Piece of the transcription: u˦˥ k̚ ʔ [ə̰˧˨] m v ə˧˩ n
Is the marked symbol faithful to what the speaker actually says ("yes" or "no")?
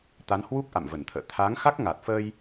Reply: no